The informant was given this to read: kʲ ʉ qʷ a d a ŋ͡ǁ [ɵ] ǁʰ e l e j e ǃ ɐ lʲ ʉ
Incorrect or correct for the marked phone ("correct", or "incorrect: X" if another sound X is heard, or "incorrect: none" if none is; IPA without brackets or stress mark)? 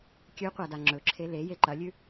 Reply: correct